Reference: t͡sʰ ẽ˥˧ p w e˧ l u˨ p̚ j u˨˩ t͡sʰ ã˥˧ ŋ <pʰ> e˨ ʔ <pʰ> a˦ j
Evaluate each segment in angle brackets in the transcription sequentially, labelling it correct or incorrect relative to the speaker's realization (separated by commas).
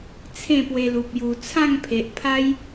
correct, correct